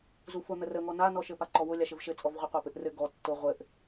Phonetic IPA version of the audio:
z u f ʊ n̪ ə r ə ŋ ɔ n a n ɔ ʃ ɘ p a ǃ ɔ w ʊ lʲ a ʃ ɘ v ʃ ɘ t͡sʼ ɔ v ʁʷ ɘ qʷ a p ɘ ʔ r ɘ ɡ ɔ tː ʊ ʁʷ ɘ ʔ

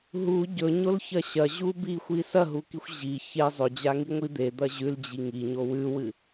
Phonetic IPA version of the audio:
ɦ u ɟ ɵ ɲ o l ç ɐ ɕ ɐ ʑ u b i xʷ i s ɐ ɦ u k i xʷ ʑ i ç e zˤ ɵ d͡ʑ a ŋ i ŋʷ i d̪ e d̪ ɐ ʑ ʉ l d͡ʑ i ŋ i ɲ o w ʉ w ɨ

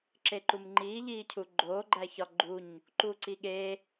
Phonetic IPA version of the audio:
ǁ e ǃ u m ŋ͡ǃ iː ʎ iː cʰ u ɡ͡ǃ oː ɡ͡ǃ æ ç ɒ ɡ͡ǃ u ɲ | ǃ uː ǀ i ɠ e

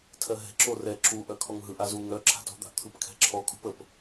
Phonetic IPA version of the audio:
tʰ ɜ ɦ ɛ̤ ǁ o r ɛ ǁ u ʔ œ kʰ ɔ ŋ ɦ ɯ ʔ a z u ŋ œ ǁʰ a̤ t o̤ d̪ a̤ ʔ t̪ʰ ɯ p kʰ ɛ̤ ǁʰ ɔ kʼ ṳ p ə p

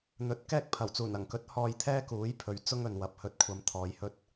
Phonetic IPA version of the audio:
n̪ ɵ˨˥ t̚ k ɛː˥ k̚ pʰ ɐ˨˩ w t͡s uː˨˩ n ɐ˨˩ ŋ k ɵ˨˥ t̚ h ɔː˨ j t̪ʰ ɛː˥ k uː˨˥ j pʰ ɵ˨ ɥ t͡s ʊ˥ ŋ ɵ˨ n w ɐ˨˥ p̚ h ɵ˧ t̚ kʷʰ ɐ˧ m t̪ʰ ɔː˨˧ j h ɵ˥ t̚

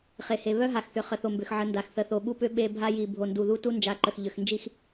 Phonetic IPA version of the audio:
χ e˨ h e˨ β œ˦ ɦ a˨ x θ ʏ˨ χ ə˨ θ o˨ m b ʏ˨ x ʕ ə˨˦ n d a˨ x θ ə˨˦ θ o˨ ɓ u˦ p ʏ˦ ɓ e˦ bʱ a˦ j i˨ bʱ o˨ n d u˨ ð u˦ t u˦ n d͡ʒ a˨˦ ǃ ə˨ x ʎ ʏ˨ x n d͡ʒ i˦ x

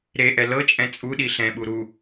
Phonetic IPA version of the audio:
ɾ e ʔ ɛ l ɤ t͡ʃʼ ɛ̃ t͡sʼ u ɗ i ɬ ɛ̃ ɓ u ɾ u

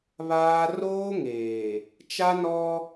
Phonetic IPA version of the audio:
β aː˦ r oː˦ ŋ eː˨ | t͡ʃ a˦ n ɔ˦

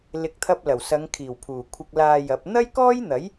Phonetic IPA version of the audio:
l ɪ˨˥ k̚ t̪ʰ ɐ˧ p̚ l ɐ˨˩ w s ɐ˨˧ ŋ kʰ iː˨˩ w pʰ uː˨˩ kʷʰ ɪ˧ k̚ l aː˧ j ɐ˨˥ p̚ n̪ ɐ˥ j k ɔː˥ j n̪ ɐ˨˥ j

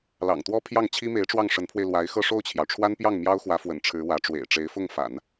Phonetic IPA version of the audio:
l ɑ̰˨˩ ŋ t̪ w ɔ˥ pʰ j ɑ˥˩ ŋ t͡ɕʰ i˥ m e˧˥ ɪ̯ ʈ͡ʂ w ɑ˥˩ ŋ ʂ ə˧˥ n pʰ w e˧ ɪ̯ l w a˧˥ ɪ̯ x ɤ˥˧ ʂ o˥˩ ʊ̯ t͡ɕʰ j ɑ˩ ʊ̯ ʈ͡ʂʰ w a˥ n p j ɑ˥˩ ŋ m j ɑ˥ ʊ̯ x w ä˧˥ f w ə̰˨˩ n ʈ͡ʂʰ ɻ̩˧˥ w ä˧˥ ʈ͡ʂ w ḛ˨˩ ɪ̯ ʈ͡ʂ e˧˥ ɪ̯ f ʊ˥˩ ŋ f a̰˨˩˦ n

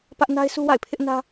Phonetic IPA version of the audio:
p ä˦ ʔ n a˦ ɪ̯ s u˦ w a̰˦˨ ɪ̯ pʰ ɪ˦ ʔ n ä˦

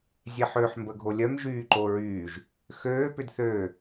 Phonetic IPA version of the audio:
zʲ e ħ ø ħ m b ə ɡʱ o lʲ œ m ʒ yː ǃ o ɹ yː ʒ | x øː p ʏ d θ øː

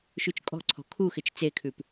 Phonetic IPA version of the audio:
ʃ ʉ t͡ʃ kʼ ɔ̤ ǀʰ ɔ̤ kʰ u x ɪ t͡ʃ t͡s e kʰ ʉ p

